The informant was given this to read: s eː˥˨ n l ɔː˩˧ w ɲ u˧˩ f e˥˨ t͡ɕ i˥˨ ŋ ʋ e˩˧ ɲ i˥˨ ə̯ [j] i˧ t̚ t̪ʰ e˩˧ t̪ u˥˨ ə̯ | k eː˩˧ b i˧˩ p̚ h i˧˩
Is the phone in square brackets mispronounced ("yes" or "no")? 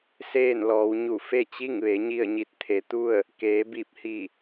yes